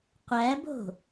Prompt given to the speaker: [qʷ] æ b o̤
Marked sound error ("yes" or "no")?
no